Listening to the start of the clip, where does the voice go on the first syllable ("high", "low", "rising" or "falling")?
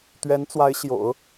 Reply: rising